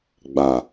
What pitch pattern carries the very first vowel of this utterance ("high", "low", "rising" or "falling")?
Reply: low